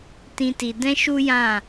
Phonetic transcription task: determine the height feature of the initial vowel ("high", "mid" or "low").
high